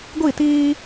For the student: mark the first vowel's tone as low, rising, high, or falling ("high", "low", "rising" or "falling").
falling